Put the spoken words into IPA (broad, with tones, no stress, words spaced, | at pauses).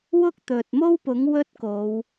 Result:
wʊ˥k̚t̪ɵ˨t̚mo˥wpʊ˨˥ŋ wɵ˥t̚ko˨˧w